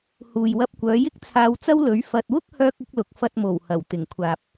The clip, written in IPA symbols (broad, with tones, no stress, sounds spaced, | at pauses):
h uː˨ j w ɐ˧ p̚ kʷ œː˨˧ j ɪ˥ k̚ t͡sʰ aː˧ w t͡s ɐ˥ w l ɵ˨˥ ɥ f ɐ˨ t̚ w ʊ˥ k̚ h œː˥ k̚ ʊ˥ k̚ l ʊ˨˥ k̚ f ɐ˧ t̚ m o˨˩ w h ɐ˨˩ w t̪ ɪ˨˩ ŋ kʷʰ aː˨ p̚